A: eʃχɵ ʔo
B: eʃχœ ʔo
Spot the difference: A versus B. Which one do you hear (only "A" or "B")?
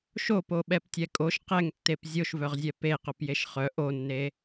B